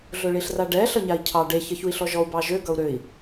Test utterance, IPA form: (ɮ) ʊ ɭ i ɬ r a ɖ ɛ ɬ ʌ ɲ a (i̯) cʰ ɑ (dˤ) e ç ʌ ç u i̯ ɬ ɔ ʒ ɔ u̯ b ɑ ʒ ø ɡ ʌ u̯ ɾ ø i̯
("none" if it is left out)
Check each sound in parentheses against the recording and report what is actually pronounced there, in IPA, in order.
ɮ, i̯, ɖ

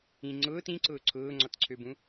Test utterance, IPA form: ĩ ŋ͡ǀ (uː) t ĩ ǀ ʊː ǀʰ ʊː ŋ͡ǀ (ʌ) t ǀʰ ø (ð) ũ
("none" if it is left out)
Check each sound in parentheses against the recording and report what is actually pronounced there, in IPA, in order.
ʊː, ɔ, b

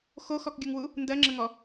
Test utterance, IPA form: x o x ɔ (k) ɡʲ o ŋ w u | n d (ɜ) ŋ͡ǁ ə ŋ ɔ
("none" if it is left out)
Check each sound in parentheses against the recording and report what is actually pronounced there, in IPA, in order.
k, ɜ

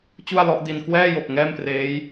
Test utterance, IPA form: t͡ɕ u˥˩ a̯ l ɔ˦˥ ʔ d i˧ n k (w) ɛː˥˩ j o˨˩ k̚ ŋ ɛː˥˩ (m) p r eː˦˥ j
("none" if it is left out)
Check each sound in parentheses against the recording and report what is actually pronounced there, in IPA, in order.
w, m

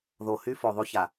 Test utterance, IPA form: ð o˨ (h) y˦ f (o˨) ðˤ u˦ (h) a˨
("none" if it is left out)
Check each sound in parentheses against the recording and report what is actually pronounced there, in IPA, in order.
h, o˨, ç

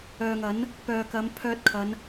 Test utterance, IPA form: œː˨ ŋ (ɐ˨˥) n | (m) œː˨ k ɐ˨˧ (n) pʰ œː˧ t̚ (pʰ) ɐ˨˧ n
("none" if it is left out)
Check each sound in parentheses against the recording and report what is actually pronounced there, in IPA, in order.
ɐ˨˥, p, m, kʰ

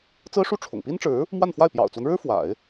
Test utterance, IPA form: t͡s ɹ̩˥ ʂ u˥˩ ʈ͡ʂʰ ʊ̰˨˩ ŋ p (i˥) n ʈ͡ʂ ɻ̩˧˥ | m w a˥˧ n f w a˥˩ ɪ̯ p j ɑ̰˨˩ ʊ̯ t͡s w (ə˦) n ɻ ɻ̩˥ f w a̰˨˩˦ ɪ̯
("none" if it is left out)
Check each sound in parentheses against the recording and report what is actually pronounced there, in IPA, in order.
i˥, ə˦

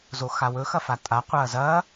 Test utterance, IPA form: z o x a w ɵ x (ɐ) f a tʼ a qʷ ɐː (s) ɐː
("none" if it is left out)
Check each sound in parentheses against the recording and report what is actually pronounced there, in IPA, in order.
ɐ, z

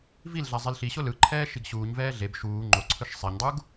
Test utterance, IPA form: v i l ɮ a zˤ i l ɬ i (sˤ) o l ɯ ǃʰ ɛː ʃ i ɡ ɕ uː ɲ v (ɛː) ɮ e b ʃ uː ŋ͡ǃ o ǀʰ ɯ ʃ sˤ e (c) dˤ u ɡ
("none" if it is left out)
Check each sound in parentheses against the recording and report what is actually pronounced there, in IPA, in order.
ɕ, ɛː, ɲ

